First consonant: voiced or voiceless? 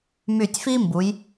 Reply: voiced